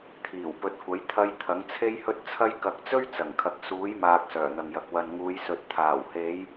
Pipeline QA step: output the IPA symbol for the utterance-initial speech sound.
t̪ʰ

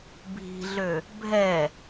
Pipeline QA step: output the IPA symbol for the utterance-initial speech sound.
bʱ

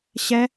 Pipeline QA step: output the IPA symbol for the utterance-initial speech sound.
ɕ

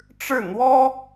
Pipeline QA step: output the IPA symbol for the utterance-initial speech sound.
ʈ͡ʂ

